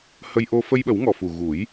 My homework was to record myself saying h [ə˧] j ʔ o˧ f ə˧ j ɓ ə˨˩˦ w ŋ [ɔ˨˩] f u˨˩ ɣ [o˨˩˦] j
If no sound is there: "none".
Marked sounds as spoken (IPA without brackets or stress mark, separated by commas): ə˧, ɔ˨˩, u˨˩˦